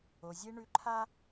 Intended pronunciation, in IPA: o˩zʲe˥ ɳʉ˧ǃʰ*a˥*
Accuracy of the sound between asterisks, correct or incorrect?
correct